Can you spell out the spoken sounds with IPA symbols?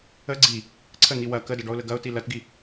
ə ɡ͡ǀ i | ǀʰ ə n̪ i w ɐ k ə d ɐ ɖ ɔ ʊ̯ l ə ɡ ɐ ʊ̯ t i l ɐ t ɡ i

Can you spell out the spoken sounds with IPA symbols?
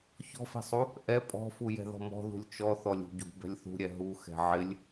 ç ɔ̤ f ɛ̤ sˤ u | ʔ ɛ pʼ ɔ̤ f u j ɛ̤ ð ɔ̤ m ɔ̤ ð ṳ lʲ t͡ʃ ɔ θ ɔ lʲ ṳ ɟ ṳ b ɛ̤ lʲ θ ṳ ɾʲ ɛ ɦ u x ɛ̤ ʕ ɪ lʲ

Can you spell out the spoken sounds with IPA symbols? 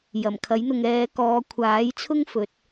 j ɐ˨˩ m kʰ ɐ˨˥ j n̪ ʊ˨ ŋ ɛː˨˧ k ɔː˨˧ kʷʰ aː˨˥ j t͡sʰ ʊ˥ ŋ f ɵ˨˥ t̚

